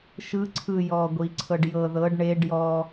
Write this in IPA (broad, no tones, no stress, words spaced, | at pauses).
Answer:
ʃɯ ǀʰɯ jɔːɡʷiǀʰɤɖ jɤ ðɤɖ ɳeɖ jɔ